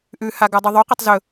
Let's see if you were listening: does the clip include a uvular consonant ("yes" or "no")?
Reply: yes